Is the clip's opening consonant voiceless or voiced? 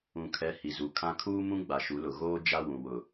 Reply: voiceless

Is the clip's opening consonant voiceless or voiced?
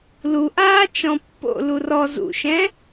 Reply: voiced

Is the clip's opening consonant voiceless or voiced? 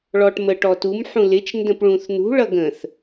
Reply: voiced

